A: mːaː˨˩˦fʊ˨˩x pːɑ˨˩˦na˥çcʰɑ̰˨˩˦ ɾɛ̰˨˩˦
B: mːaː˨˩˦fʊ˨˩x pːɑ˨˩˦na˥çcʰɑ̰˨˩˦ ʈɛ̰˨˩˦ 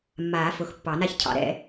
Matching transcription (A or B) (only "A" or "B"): A